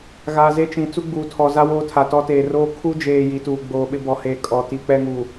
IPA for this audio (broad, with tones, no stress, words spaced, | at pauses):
ɣaː˨ze˦ t͡ʃĩ˨ t͡su˦ɡ͡buː˨tʰɔ˨za˦ woː˦tʰa˨tɔ˦teː˨ roː˦ kʰu˦d͡ʒeː˨ ji˨˦tuː˨ ɡ͡boː˨ɓɪ˦bɔ˨heː˨ kʼɔ˨ ti˨k͡pɛ˦ŋuː˨